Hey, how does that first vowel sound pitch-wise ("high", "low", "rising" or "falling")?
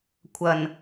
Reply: low